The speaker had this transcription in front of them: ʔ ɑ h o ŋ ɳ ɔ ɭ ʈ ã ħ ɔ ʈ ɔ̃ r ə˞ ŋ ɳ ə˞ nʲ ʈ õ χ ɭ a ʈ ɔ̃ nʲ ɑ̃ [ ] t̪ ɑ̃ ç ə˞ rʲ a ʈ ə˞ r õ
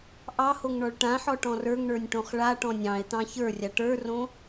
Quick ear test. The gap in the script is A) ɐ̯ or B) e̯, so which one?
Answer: B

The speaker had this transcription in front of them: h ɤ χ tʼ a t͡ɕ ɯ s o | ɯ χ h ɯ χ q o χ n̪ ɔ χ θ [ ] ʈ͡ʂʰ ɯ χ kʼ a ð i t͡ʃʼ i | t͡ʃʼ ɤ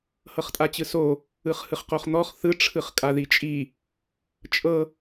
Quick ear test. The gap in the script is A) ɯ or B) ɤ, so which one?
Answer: A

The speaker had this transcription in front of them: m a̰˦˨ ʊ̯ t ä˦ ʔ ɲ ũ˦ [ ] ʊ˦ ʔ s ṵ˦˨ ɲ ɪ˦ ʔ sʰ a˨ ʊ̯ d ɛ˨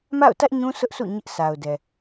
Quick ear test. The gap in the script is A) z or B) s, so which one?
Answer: B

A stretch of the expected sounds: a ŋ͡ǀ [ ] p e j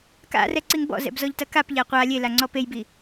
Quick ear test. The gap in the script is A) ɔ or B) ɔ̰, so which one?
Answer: A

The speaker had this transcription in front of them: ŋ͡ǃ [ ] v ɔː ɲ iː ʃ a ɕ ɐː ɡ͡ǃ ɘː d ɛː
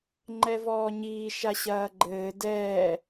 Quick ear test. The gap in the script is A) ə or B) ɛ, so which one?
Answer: B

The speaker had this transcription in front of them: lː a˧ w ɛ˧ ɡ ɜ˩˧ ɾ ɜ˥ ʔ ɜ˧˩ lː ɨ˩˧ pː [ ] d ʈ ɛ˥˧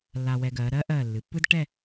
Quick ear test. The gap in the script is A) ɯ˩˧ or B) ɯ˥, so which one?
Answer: B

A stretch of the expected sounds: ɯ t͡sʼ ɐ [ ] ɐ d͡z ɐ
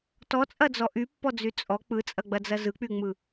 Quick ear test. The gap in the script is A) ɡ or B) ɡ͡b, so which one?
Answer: B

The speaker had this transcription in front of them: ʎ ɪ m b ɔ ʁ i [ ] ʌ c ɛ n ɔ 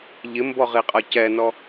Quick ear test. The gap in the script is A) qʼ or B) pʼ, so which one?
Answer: A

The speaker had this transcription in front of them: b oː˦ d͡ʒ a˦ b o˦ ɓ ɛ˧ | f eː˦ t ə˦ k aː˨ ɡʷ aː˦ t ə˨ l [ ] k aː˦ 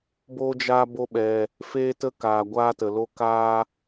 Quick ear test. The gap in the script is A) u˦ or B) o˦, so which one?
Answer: B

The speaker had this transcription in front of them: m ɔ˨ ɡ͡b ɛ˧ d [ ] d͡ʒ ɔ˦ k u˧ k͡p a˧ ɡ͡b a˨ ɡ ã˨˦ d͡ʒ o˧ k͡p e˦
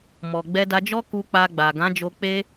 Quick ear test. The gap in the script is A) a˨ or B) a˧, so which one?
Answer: B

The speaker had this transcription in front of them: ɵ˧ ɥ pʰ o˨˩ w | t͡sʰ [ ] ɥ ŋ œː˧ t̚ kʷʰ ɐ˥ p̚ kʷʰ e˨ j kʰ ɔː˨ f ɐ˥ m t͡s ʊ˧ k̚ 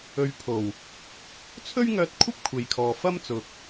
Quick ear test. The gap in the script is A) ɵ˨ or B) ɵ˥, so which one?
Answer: B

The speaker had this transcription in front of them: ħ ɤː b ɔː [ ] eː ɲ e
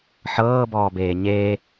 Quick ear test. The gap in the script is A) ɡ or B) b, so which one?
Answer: B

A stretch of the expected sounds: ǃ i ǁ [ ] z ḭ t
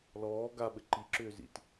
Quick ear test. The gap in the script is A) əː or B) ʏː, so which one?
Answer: B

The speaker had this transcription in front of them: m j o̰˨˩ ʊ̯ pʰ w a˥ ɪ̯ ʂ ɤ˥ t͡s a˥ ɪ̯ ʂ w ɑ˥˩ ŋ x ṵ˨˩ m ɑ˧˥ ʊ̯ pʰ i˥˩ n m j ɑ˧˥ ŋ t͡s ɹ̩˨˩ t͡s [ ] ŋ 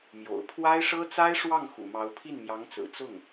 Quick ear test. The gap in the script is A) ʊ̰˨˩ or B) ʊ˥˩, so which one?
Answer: B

